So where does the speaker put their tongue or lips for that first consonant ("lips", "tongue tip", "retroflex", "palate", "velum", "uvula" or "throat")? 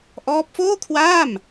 throat